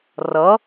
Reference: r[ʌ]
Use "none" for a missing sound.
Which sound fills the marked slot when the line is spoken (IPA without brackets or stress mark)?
ʌ